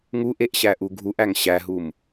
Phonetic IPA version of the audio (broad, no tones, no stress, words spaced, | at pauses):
ŋuʔeʔɕæʔu ɡʱuʔæŋ ɕæɦum